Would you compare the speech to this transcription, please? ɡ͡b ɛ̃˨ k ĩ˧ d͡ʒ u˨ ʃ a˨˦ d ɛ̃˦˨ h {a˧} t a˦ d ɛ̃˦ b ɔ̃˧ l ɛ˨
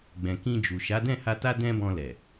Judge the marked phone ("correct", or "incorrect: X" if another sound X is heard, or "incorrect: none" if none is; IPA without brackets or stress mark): correct